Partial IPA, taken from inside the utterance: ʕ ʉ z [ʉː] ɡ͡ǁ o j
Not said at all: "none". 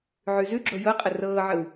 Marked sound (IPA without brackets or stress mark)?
ʉ